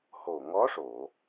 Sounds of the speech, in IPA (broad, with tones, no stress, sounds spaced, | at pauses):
h o˨˩ ŋ ɔ˧˥ ʂ o˨˩˨